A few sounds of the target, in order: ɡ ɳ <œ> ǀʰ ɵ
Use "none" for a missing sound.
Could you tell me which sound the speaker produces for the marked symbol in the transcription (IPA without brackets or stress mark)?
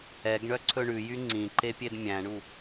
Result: œ